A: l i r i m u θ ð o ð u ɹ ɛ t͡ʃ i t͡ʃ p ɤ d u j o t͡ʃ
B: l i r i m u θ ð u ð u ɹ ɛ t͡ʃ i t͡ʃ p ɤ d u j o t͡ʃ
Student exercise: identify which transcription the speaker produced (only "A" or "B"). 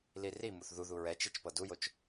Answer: B